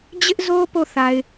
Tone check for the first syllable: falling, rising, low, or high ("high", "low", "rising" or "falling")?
high